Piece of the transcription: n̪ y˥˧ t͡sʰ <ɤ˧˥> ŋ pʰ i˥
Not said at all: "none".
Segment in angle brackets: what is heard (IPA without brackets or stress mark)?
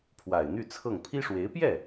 ɤ˥˩